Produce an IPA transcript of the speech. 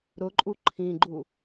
ɾʊǃʼu ǃʰĩɡ͡ǃu

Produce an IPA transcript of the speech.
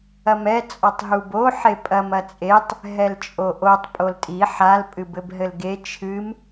ɐmɛ t͡sʼɔtˤɦubo ħepʼɐm ɐt͡sʼetˤ | ɦɛlt͡ʃʼoʔotˤ pʼoltʼi ħal pʼɨbɘbɦɘlɡe t͡ʃʰɨm

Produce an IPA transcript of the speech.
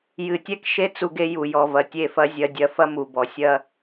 jɨ˨tʲɛ˦kʃe˦ t͡su˦ɡe˦ju˨jɔ˨ vɐ˨tʲe˦˨fɐ˦ zʲɐ˦dʲɐ˦ fɐ˦mu˨bɔ˨ sʲɐ˦

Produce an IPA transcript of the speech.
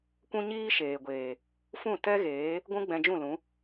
kʷũ˦ɲiː˦ʃeː˨ɡʷeː˨ | fũ˦˨tɛ˦ɣeː˨˦ | ɡʷũ˦ɡ͡bɛ̃˧d͡ʒũ˦˨lũ˨˦

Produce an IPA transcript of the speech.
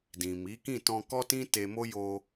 dĩ˨mi˨˦kĩ˦˨ tɔ̃˧kɔ˦tĩ˦ te˧mo˦ jo˧

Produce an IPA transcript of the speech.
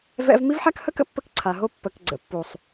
vɛ̰˦v mi˦vħa˦khə˦kə̰˦ pːə˦kǀʰa˨ɦo˦ pːə˨k ɡ͡ǀə̰˨pːu˨sˤ

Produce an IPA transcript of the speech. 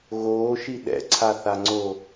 ɣoːʃi ɗɛ̰ǀʰaθaŋ͡ǀo

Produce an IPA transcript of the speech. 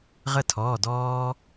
ʁə˦˨tʰɔː˩˧˩ dɔː˦

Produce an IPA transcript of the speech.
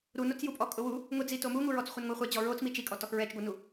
ɾunot͡sjupʼɔ kʼʊwu | ŋʊd͡zi tomuŋuɹɔt͡s χʷɛnŋʷaχʷɛd͡ʑɔ ɹot͡s mit͡ʃikʼɔ tɔxɹɛt͡ʃɡʷɛnu

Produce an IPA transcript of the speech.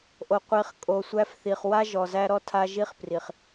ʔo˨qʷi˨˦χ kʼo˨sʷæ˦fθi˨χ wa˦ʒɔ˨zæ˦ɾɔ˦ tʰa˦ʒi˦χpri˨χ

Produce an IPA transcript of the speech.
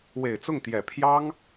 we˨˩ɪ̯t͡sʊ˥˩ŋt̪jɛ˨˩pʰjɑ˥ŋ

